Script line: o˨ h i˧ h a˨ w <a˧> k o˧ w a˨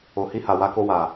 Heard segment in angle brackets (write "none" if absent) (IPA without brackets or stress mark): a˧